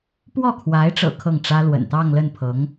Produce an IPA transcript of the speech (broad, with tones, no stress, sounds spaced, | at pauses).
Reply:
p w ɔ˥˩ kʰ w a˧˥ ɪ̯ ʈ͡ʂ ɤ̰˨˩ kʰ ɤ˥˩ ŋ ʈ͡ʂ ä˥ l w ə̰˨˩ n t̪ ɑ˥˧ ŋ l ə˥˩ n pʰ ɤ˧˥ ŋ